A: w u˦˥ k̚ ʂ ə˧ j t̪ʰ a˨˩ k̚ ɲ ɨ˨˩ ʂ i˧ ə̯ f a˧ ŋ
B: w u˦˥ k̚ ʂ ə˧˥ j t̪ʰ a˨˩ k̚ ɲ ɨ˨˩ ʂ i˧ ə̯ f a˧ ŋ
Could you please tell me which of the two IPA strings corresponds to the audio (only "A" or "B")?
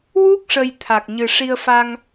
A